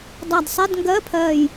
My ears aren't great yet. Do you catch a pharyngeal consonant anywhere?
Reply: no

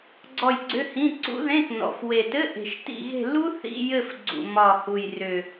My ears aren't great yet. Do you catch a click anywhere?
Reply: yes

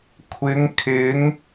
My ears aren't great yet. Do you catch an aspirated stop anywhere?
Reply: yes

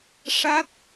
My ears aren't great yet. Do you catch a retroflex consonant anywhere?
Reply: yes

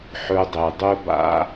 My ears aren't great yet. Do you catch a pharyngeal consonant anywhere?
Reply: yes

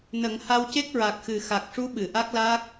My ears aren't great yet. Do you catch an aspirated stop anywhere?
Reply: no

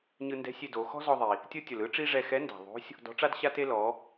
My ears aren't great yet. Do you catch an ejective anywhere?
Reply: no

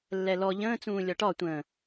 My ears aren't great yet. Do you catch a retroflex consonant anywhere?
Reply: yes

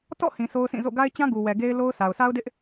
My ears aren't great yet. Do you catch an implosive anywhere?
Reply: no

